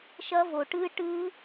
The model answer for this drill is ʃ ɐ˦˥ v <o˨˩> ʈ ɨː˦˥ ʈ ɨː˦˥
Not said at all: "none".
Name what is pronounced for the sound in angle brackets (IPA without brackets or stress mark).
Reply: o˨˩